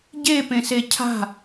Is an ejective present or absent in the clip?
absent